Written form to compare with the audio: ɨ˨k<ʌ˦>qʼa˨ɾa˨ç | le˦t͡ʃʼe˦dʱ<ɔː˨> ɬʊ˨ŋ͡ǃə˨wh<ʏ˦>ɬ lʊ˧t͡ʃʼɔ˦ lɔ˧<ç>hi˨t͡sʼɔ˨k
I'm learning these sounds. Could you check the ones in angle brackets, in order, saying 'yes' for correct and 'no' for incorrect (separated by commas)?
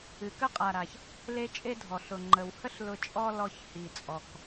no, no, no, yes